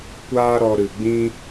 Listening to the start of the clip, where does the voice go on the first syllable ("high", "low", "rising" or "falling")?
high